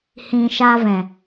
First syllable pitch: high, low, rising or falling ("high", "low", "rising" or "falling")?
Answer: low